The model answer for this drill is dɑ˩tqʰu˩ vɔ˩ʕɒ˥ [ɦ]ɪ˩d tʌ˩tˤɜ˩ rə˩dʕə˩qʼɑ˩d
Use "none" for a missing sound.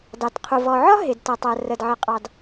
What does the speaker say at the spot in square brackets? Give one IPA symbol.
ɦ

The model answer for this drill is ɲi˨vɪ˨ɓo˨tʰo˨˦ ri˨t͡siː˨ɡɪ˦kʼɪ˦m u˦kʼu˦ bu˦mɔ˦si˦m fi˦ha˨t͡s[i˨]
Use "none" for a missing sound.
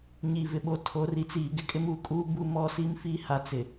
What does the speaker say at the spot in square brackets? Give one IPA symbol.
ɪ˨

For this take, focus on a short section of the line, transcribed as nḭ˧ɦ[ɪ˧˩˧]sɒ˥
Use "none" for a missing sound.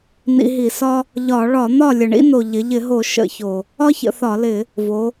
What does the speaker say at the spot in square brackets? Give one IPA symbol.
i˧˩˧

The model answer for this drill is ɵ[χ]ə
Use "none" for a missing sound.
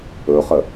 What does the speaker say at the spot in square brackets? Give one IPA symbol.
χ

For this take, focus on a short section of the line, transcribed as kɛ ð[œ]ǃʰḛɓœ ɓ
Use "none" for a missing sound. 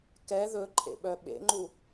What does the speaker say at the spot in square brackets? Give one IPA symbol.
ɵ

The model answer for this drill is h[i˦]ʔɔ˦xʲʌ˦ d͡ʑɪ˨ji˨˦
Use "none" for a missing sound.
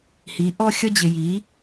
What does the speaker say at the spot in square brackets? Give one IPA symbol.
i˨˦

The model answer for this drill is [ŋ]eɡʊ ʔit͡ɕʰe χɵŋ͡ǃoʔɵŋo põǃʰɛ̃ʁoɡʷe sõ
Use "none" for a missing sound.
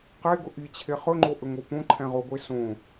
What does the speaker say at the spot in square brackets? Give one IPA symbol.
q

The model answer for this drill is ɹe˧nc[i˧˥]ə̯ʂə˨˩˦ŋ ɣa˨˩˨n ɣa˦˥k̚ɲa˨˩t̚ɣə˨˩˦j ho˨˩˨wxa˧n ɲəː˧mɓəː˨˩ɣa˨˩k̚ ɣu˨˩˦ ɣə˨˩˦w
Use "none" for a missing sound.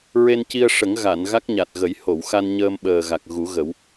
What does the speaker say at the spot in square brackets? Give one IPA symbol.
i˧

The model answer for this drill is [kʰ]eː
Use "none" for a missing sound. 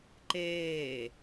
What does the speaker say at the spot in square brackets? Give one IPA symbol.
ǃ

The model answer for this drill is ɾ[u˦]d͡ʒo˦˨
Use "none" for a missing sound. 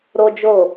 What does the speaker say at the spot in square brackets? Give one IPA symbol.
o˦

